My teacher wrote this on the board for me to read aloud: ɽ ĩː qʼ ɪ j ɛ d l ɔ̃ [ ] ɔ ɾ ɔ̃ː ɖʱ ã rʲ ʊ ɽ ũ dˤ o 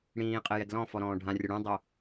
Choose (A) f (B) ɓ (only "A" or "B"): A